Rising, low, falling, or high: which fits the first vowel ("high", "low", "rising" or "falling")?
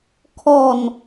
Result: low